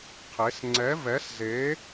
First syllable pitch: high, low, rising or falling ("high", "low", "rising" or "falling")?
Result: rising